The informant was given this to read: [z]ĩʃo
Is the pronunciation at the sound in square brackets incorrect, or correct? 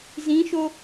correct